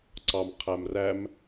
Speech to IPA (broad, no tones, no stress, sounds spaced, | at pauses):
ǀ ɑ m qʰ æ m r æ m